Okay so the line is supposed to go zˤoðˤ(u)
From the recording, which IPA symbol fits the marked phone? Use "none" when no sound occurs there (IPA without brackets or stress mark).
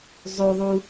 u